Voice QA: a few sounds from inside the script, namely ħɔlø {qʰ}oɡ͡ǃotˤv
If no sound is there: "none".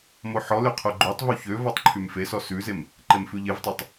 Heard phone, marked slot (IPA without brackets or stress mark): qʰ